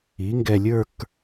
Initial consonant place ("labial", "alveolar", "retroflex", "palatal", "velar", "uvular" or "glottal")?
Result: velar